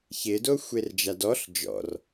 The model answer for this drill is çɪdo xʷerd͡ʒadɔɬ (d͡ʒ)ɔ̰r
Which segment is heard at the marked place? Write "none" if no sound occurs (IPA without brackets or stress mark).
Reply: d͡ʒ